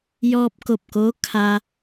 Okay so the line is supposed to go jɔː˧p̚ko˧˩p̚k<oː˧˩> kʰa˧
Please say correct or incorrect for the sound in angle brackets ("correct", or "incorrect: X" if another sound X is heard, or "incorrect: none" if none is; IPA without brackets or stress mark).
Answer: incorrect: oː˧˥